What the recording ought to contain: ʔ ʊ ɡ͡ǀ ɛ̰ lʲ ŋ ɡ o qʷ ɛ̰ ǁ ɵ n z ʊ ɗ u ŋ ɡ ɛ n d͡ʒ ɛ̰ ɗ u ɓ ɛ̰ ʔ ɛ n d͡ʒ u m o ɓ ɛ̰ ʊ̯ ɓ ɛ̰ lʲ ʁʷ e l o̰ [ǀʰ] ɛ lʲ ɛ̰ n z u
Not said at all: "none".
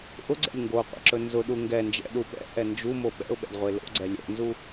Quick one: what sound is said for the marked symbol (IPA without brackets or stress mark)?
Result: ɡ͡ǀ